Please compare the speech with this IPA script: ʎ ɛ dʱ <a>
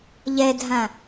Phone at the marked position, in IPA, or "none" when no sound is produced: ã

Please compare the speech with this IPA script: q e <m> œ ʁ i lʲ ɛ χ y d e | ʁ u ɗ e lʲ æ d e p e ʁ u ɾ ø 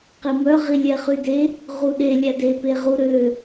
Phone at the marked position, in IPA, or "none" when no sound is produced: m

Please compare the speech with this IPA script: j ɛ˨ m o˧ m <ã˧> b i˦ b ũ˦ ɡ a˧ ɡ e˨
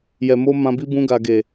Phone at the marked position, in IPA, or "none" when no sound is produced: ã˧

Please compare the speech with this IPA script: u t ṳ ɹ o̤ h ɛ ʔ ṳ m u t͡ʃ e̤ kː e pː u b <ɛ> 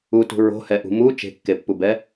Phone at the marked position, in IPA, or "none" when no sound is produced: ɛ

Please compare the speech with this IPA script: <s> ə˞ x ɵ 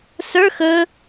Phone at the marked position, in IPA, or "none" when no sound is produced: s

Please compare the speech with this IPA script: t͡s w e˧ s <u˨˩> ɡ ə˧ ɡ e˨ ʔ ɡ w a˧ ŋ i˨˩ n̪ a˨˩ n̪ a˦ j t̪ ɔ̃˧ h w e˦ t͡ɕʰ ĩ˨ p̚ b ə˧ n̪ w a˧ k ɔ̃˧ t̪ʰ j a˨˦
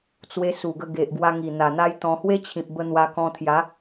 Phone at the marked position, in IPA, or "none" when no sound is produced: u˨˩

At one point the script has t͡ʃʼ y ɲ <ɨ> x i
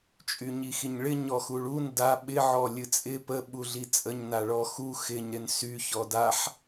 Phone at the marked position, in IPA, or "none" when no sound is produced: i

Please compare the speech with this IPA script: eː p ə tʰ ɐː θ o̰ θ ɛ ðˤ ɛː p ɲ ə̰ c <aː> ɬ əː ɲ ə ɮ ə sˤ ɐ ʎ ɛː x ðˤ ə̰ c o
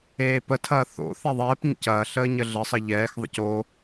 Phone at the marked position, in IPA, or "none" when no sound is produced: ɐː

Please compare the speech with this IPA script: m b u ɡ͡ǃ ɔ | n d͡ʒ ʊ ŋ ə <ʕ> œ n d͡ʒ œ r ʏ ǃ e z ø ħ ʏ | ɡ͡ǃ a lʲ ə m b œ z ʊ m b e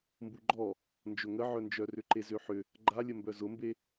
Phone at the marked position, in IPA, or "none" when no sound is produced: ʕ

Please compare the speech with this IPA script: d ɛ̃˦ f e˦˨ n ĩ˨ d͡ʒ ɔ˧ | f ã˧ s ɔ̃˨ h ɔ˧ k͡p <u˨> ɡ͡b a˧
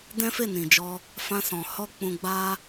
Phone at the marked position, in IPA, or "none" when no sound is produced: ũ˨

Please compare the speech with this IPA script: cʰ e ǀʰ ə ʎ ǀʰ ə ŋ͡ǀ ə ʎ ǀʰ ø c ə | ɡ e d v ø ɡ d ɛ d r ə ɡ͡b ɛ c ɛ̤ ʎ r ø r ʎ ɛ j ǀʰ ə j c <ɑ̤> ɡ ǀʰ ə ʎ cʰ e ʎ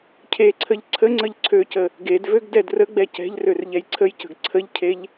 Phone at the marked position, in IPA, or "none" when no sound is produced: ə̤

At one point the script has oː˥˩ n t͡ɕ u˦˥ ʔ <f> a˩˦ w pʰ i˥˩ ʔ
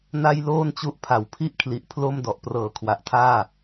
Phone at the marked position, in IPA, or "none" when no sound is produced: pʰ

